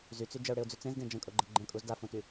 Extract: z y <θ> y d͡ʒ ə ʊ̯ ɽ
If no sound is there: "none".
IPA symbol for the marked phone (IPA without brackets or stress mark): t͡s